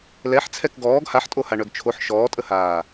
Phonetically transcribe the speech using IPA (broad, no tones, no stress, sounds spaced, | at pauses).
l ɛ ħ t͡sʰ ɛ k ɡ ɔː ɡ h a ħ tʼ o h a ɳ œ ɡ t͡ʃʰ o ħ ʃ ɔː tʼ ə h aː